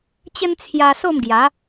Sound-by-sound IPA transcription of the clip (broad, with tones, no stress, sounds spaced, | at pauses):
t͡ɕ ə˦ n t͡sʰ j a˧ s o˥˧ m ɡ j a˨˦